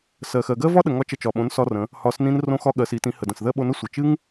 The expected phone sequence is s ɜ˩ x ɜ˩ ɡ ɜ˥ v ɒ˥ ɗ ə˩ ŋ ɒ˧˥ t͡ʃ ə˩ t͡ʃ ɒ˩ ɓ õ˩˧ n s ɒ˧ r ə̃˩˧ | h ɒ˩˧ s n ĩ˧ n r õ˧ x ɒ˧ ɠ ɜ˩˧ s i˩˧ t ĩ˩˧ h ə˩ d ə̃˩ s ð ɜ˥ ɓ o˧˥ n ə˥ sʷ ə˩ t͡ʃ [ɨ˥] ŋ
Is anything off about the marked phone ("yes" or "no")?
no